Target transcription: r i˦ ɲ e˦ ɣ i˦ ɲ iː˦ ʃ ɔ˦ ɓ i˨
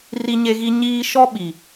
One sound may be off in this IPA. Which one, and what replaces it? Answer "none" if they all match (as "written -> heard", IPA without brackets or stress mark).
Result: none